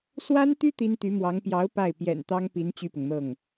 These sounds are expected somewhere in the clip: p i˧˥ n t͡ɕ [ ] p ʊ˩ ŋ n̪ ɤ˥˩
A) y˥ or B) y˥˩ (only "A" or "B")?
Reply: B